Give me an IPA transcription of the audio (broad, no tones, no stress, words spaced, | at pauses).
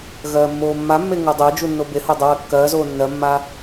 ɣɜːmːoːmːamːe ŋodˤəːd͡ʒu nːobeho dˤəwɜkːɜːzoː nːɜmːa